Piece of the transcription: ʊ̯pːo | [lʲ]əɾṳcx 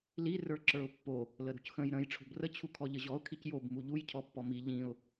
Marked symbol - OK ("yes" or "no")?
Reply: no